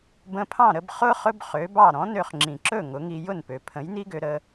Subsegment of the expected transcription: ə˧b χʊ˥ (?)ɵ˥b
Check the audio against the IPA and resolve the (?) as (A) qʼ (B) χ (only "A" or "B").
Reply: B